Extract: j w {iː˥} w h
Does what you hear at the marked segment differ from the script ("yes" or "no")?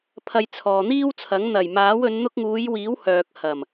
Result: yes